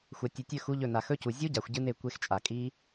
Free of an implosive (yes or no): yes